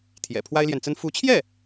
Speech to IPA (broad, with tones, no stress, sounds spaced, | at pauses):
t̪ʰ j ɛ̰˨˩ pʰ w a˥ ɪ̯ l j ɛ˨ n t͡s ə˥ n f u˧˥ t͡ɕʰ j ɛ˥˩